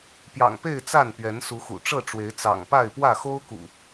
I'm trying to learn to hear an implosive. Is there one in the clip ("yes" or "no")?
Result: no